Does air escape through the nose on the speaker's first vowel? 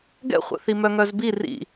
no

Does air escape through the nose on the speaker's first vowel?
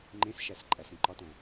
yes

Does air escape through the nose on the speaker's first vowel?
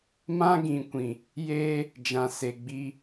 yes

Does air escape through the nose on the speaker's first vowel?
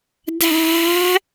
no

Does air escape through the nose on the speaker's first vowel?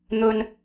no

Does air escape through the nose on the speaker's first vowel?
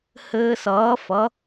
no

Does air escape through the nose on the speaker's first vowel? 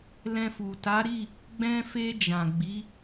yes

